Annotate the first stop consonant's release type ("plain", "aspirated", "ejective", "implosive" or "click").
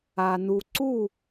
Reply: click